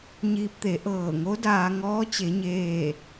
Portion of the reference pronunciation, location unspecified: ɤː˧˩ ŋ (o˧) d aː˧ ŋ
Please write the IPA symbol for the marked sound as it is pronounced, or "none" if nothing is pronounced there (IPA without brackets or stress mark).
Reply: o˧˥